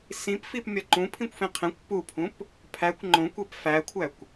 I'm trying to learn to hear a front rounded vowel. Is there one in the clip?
no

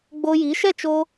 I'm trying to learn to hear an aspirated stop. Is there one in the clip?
no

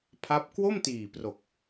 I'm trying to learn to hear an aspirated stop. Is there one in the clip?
yes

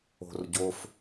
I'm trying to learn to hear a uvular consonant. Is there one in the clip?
no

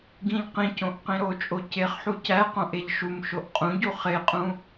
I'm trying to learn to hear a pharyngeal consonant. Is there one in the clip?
yes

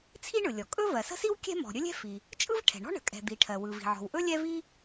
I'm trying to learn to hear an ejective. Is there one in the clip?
yes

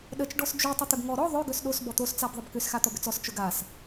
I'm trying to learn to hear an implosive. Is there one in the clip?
yes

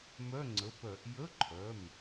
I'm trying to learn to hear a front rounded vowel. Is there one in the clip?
yes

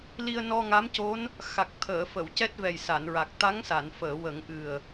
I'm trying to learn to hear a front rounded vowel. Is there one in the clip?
no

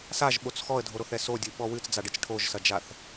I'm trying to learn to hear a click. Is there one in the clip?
no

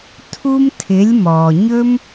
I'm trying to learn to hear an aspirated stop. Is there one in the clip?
yes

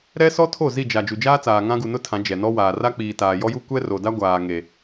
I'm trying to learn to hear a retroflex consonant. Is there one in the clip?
no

